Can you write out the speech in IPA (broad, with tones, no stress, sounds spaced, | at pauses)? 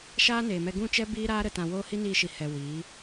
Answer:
ʃ aː˦ n eː˨ m ɛ˧ ɡ ũ˦˨ t͡ʃ ɛ˦ b iː˦ ɾ aː˦ ɾ ə˧ t ã˧ w oː˦ h i˦ n iː˧ ʃ i˨ h ɛ˨ w iː˨˦